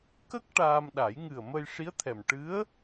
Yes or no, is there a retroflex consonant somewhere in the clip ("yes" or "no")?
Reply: yes